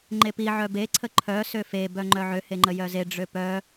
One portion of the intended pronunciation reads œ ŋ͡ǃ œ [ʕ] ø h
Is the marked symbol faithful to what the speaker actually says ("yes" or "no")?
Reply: yes